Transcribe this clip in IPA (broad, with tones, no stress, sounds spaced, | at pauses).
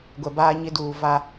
ɡʷ ɛ˨ b aː˦ ɲ ɪ˦ d uː˨ v a˦